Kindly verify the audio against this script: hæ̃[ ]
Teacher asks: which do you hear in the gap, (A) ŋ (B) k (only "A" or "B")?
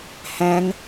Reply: A